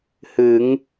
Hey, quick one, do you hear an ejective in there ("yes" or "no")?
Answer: no